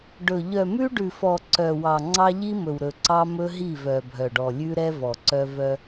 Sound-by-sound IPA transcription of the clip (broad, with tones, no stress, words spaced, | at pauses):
ɖɵ˨ ʎœ˨mʉ˦ɖʉ˨fɔ˨ ǀœ˨wɑ˨ ŋ͡ǀɑ˦ʎi˦mɵ˨wɾɵ˨ ǀɑ˦mɵ˦ ɦi˦˨vœ˨ bʱœ˨ɖɔ˨ lʲʉ˦ɾɛ˦ vɔ˨ǀœ˦ vœ˦